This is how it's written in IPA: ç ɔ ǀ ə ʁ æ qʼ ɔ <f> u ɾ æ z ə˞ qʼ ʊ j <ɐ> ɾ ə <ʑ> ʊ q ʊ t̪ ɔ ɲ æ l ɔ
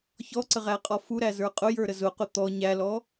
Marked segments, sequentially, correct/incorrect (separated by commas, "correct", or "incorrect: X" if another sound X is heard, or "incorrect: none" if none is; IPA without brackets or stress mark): correct, incorrect: ə˞, incorrect: z